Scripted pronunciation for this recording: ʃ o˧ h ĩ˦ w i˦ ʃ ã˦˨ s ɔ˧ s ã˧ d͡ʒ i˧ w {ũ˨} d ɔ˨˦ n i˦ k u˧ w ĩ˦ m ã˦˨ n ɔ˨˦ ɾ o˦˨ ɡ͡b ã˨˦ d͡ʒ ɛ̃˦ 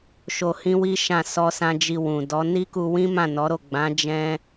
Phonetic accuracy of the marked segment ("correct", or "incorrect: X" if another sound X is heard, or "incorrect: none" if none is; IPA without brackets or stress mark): correct